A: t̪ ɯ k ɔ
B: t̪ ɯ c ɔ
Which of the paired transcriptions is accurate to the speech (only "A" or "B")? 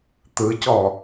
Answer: B